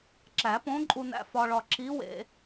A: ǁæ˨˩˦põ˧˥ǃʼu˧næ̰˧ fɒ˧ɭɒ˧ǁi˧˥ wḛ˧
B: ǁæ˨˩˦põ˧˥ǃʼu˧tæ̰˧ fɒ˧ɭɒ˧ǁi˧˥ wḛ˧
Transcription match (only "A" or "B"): A